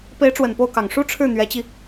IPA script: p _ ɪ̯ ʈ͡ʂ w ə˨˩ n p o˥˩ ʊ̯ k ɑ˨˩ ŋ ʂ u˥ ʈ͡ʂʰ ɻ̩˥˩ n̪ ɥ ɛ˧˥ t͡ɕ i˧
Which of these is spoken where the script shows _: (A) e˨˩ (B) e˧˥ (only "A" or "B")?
B